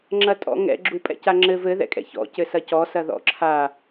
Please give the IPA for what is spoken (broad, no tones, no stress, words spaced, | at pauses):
ŋ͡ǁɐtʼɔ̰ŋɛ̰ ɡ͡ǁupʼɛ̰caŋ͡ǁɘv ɘ ðɛ̰kʼɛ̰çɔ̰ cɘsɐcɔ sɐðɔ̰ǁʰa